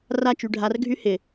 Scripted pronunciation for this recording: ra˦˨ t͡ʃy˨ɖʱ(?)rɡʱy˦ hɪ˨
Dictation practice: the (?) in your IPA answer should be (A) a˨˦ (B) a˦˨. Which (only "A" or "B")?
A